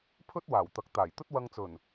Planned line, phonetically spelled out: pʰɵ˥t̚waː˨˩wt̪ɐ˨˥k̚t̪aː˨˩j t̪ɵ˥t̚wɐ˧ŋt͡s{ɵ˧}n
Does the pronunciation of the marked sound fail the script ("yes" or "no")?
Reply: yes